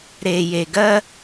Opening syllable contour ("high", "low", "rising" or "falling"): low